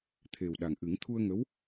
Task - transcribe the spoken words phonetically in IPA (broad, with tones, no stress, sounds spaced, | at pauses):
t̪ʰ e˨˩ w ɗ a˨˩ ŋ ʔ ɨ˨˩˦ ŋ t̪ʰ u˧ ə̯ ŋ ə˧˥ w